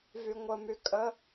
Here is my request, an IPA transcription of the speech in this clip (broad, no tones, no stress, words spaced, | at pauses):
vyŋʷəmy kʼə